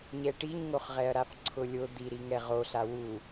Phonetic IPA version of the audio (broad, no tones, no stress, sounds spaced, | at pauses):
ɲ ɛ ʈ i ɲ ŋ o χ ʁ ɛ ɐ̯ ɾ a f ǀʰ ʊ lʲ ʊ d̪ i ɾ i ŋ ɛ ʁ o ɬ a w u